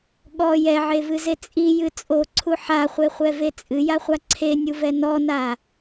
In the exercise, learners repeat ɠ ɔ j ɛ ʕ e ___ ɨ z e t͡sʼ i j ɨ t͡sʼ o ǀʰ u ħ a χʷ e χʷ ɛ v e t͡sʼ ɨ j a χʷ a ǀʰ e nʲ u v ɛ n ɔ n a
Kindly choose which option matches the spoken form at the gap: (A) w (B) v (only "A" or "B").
B